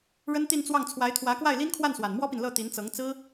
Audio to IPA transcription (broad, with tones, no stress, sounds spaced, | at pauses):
ɻ ə˥ n t̪ i˥˧ n t͡s w ɑ˥˩ ŋ t͡sʰ w a˧˥ ɪ̯ t̪ʰ w ä˧˥ k w a˥˩ ɪ̯ l i˥ n kʰ w a˥˩ n s w a˨˩ n m w ɔ˥ p i˨ n l ɤ˥˩ t̪ i˧˥ n t͡s ɤ˧˥ ŋ t͡s ɹ̩˥